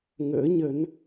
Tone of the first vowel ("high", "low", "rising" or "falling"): rising